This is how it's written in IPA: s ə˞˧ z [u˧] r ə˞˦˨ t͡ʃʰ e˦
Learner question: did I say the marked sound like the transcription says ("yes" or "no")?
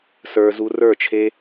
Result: yes